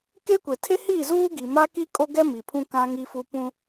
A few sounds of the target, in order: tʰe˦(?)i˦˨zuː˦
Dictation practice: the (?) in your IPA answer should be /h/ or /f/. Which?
h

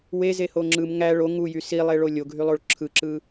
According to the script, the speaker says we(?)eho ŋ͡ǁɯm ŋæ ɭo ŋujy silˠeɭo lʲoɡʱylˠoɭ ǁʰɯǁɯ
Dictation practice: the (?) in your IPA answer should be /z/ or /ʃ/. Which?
z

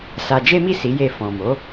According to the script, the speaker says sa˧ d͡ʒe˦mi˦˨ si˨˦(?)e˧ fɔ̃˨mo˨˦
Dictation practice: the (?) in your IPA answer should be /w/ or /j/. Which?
j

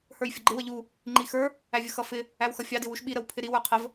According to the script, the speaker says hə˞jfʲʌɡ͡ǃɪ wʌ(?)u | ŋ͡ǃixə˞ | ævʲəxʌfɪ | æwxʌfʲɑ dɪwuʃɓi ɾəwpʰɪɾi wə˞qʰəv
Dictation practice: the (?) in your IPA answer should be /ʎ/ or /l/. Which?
ʎ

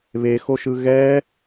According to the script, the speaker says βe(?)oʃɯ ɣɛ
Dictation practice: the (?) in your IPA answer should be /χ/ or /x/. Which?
x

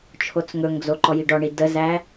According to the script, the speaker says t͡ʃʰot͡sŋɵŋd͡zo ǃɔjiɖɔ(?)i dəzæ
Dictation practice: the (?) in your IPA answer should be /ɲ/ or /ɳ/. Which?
ɳ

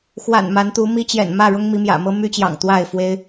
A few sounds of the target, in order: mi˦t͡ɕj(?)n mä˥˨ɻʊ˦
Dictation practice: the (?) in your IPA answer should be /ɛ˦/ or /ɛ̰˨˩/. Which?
ɛ̰˨˩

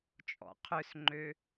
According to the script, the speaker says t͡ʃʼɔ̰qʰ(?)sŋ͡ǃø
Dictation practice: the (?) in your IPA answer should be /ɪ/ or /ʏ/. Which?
ʏ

